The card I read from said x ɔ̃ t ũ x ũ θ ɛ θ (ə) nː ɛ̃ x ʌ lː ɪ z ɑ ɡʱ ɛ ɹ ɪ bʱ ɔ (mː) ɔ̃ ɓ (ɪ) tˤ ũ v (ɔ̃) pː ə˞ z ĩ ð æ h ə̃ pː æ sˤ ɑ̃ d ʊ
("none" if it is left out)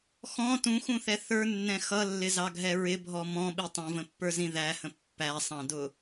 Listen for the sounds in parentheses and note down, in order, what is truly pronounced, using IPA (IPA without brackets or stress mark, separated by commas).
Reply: ə˞, m, i, ə̃